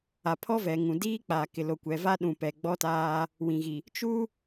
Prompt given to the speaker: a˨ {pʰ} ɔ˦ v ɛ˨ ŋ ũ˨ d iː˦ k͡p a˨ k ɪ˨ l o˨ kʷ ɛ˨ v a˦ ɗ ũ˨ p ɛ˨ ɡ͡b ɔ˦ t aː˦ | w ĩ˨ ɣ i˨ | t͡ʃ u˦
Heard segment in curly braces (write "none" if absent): pʰ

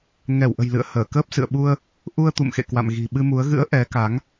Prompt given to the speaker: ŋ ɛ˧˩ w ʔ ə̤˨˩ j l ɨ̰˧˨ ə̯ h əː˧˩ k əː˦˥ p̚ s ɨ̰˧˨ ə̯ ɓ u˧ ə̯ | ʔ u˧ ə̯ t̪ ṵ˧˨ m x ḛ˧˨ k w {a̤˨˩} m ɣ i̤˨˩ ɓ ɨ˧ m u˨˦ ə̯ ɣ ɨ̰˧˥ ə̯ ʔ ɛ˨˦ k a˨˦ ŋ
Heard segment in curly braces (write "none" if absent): a̰˧˨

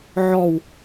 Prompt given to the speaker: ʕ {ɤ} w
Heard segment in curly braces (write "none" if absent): ɔ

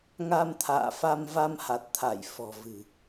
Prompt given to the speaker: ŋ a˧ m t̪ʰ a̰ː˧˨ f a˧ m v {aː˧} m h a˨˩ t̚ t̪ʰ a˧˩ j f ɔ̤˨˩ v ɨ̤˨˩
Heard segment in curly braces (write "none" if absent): a˧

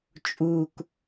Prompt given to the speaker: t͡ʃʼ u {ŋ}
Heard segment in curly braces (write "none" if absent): k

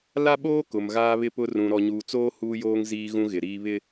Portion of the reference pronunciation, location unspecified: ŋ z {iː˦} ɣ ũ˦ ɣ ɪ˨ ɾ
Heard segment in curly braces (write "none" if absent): iː˦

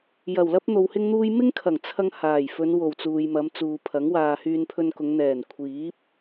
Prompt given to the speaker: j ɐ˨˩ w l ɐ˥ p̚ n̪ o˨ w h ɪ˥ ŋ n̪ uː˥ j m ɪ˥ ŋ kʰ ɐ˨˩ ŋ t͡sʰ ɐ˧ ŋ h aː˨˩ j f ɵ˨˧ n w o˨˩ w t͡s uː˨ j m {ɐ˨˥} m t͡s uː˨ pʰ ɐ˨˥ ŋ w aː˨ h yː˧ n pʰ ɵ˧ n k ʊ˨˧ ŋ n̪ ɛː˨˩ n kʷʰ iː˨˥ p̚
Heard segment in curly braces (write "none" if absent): ɐ˨˧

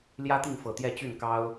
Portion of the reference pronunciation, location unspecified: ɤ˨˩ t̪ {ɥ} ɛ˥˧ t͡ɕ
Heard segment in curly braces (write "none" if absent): j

